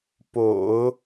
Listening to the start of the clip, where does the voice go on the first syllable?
low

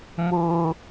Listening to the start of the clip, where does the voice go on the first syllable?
high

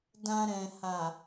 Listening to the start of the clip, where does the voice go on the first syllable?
low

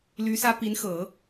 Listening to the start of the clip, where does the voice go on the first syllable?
rising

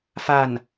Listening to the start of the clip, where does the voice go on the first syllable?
falling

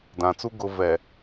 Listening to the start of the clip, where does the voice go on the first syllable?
low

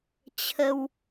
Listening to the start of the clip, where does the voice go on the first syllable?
high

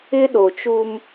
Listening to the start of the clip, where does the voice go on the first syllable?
high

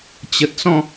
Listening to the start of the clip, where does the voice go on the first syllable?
low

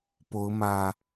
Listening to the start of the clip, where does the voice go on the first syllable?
rising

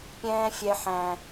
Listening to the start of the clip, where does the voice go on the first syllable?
high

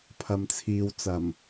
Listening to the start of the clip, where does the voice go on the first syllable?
low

